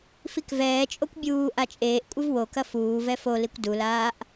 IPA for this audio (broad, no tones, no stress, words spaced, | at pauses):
fikvɛːt͡ʃʼokʷ bʲuː ʔat͡ʃʼeːʔkʷʼɨv wokɐ fuːvɛ folikʷ dulaːʔ